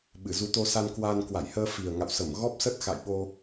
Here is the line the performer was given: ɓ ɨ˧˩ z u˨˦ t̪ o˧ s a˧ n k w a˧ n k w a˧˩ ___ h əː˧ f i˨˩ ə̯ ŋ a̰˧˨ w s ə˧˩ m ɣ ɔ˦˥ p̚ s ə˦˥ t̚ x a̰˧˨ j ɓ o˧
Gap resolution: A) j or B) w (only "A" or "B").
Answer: A